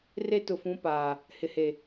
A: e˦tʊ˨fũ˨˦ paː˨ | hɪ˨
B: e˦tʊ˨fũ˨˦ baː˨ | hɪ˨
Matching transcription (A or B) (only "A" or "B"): A